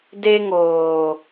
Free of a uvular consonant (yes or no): yes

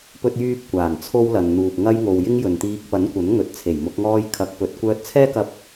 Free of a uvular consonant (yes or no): yes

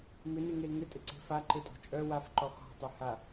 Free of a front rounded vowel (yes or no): no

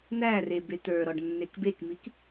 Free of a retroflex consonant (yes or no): no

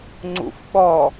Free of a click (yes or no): no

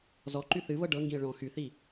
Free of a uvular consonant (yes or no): yes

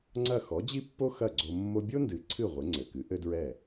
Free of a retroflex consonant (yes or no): yes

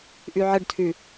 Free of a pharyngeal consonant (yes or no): no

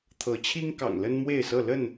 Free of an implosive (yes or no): yes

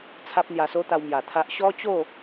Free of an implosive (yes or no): yes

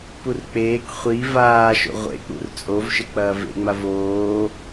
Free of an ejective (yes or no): no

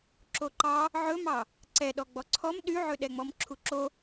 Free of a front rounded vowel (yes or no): no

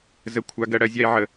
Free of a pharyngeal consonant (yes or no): no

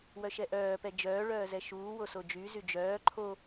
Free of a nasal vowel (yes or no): yes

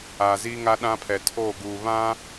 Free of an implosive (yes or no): no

